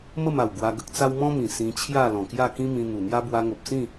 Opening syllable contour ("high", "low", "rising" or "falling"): falling